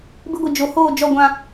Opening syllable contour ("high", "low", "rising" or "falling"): high